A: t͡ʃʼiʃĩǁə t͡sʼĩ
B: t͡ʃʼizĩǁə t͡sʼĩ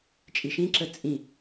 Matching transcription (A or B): A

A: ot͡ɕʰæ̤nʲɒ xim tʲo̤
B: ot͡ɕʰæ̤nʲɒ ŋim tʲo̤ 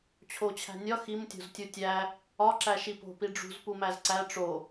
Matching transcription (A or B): A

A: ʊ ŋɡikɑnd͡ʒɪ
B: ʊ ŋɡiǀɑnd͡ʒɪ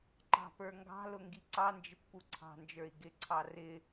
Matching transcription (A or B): B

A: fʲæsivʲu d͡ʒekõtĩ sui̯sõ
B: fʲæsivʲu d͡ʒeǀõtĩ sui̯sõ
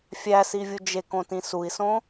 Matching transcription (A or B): A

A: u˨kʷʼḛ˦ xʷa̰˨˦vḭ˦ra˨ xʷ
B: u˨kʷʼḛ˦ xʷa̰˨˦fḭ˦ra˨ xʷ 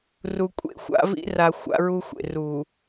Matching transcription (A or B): A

